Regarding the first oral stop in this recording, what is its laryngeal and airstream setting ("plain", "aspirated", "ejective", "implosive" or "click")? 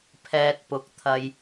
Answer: aspirated